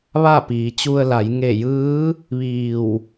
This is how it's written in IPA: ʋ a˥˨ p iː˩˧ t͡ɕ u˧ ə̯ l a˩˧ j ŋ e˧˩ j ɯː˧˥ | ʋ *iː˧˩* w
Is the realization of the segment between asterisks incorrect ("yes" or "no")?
no